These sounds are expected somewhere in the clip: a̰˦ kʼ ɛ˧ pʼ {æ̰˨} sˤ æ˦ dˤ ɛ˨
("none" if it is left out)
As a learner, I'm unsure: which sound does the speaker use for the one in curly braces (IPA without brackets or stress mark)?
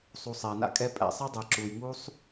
æ̰˨